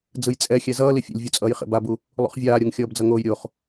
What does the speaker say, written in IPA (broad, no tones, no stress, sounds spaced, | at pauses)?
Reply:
d͡z ɯ j t͡sʼ ɛ xʲ ɛ z ʌː l i fʲ ḛ lʲ vʲ u t͡sʼ ʌː j χ ḛ b a b u | lˠ ṵ χ vʲ aː ɾʲ o ŋ xʲ ʌː b d͡z ʌ ŋ oː j ɾʲ o χ